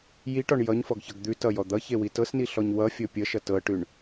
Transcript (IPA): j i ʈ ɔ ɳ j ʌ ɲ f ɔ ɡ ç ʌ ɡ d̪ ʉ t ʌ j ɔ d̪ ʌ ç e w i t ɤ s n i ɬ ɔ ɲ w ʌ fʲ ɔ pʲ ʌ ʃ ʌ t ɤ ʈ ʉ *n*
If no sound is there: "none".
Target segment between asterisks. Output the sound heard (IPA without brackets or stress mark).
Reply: ɳ